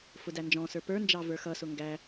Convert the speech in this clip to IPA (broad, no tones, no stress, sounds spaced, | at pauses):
f ʊ d æ n d͡ʒ ɔ̃ s ə˞ p ə˞ n d͡ʒ ɑ v ə˞ x ʌ s ʊ ŋ ɡ æ